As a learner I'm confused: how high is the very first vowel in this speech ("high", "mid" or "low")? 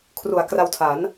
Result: high